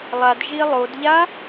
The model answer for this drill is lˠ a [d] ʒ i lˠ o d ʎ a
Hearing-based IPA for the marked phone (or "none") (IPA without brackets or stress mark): d